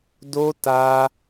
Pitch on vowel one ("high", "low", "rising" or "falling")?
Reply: high